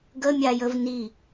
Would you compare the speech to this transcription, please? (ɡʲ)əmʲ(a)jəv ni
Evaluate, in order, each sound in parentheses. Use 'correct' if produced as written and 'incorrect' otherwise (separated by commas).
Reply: incorrect, correct